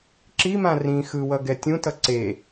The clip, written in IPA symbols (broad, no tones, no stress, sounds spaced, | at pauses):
ǁ i m ã r ĩ x ɯ w ʌ ɡ ɛ tʲ ũ t ʌ ǀ e